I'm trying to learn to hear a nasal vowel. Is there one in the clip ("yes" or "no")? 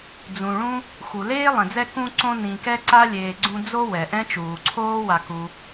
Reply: yes